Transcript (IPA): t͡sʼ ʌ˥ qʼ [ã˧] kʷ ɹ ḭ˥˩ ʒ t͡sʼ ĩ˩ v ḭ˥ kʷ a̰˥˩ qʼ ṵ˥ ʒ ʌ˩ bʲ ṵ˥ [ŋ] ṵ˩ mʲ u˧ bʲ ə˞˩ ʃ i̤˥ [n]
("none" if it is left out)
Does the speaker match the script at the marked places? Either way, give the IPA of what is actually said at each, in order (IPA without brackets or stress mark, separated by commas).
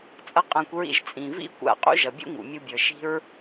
ã˧, ŋ, ɹ